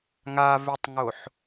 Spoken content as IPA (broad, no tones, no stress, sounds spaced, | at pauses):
ŋ a v e tˤ ŋ o ħ